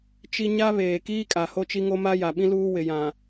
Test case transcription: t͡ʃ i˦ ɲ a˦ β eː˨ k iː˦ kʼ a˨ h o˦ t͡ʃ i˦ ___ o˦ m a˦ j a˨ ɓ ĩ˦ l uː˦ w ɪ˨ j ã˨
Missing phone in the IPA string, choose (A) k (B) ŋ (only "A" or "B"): B